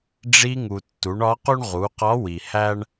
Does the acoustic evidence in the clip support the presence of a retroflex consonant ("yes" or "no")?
yes